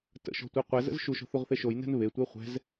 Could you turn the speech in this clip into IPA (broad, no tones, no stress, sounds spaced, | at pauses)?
t ə̰ ʃ ɔ̤ tʷ e qʷ ɛ z ə̰ z ʃ u ʃ ɔ̤ θ u ʁ θ e ʃ o j n ɛ̤ n β e tʷ ɛ χʷ ɛ̤ z